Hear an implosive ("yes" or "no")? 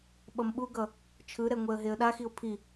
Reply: yes